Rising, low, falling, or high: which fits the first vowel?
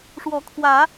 rising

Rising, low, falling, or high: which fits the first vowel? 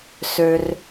low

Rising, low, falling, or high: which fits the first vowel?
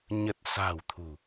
low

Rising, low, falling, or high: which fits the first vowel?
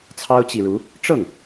high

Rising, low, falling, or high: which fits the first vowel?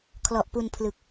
low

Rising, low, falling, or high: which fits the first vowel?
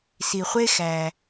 low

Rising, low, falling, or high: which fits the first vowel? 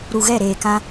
low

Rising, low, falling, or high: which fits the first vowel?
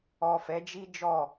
low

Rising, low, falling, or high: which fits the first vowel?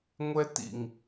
high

